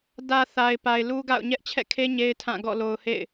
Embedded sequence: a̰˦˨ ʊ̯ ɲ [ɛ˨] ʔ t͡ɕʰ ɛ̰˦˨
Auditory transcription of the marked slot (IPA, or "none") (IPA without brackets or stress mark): ɛ˦